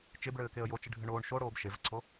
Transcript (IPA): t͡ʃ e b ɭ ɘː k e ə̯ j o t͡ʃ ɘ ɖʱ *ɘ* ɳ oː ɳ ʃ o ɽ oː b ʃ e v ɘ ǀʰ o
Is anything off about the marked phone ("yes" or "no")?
no